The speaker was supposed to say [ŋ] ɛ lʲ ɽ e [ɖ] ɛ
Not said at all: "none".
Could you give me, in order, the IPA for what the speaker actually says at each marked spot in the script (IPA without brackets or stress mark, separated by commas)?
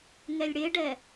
ŋ, ɖ